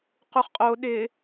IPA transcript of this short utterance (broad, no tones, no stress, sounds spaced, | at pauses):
q u χ qʼ o ɗ ɪ